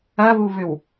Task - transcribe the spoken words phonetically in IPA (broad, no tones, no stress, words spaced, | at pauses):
ɐβuβʏw